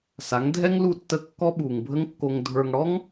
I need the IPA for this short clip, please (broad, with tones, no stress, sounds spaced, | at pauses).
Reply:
s a˩˥ ŋ dʱ ɛ˥ ŋ l u˥˩ tː ə˥˩ kː ɔ˥ ɓ uː˩ ŋ bʱ ə˥ ŋ kː o˧ ŋ dʱ ə˞˧ ŋ ɽ ɔ˥ ŋ